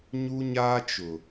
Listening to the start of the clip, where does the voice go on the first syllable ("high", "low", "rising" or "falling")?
high